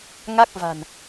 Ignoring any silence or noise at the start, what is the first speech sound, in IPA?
ŋ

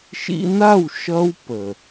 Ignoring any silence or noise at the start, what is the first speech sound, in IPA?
ʃ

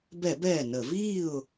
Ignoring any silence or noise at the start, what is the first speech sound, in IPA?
b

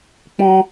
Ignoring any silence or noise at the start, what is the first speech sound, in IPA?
k͡p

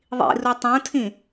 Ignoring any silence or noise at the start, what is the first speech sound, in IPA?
ðˤ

